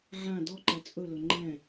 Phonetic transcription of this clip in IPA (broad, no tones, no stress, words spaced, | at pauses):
ʕã dɔǃɛ t͡sʼɵlɵ ŋ͡ǃɛ̃